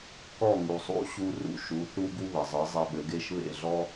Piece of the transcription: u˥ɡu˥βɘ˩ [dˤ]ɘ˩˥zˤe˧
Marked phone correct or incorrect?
incorrect